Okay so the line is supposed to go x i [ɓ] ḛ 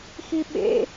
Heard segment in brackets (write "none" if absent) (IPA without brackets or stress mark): ɓ